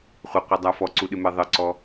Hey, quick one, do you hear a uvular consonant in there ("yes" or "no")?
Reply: yes